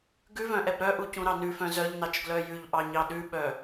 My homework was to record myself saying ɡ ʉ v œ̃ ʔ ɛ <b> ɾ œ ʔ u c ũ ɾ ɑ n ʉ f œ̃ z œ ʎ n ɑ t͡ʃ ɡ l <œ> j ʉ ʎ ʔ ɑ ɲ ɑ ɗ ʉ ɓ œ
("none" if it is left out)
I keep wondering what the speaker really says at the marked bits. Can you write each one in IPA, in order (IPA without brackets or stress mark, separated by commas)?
b, œ